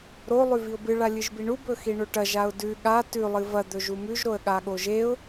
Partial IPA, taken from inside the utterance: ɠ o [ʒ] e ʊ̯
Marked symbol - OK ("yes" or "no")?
yes